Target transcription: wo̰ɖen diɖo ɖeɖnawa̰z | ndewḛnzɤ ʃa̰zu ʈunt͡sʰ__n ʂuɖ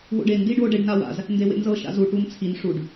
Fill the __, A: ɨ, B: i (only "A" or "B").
B